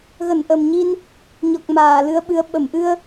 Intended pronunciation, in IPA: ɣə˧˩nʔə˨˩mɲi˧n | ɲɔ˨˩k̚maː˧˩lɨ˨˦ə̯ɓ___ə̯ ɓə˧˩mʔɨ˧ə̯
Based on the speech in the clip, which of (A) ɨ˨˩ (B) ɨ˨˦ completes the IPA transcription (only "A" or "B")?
B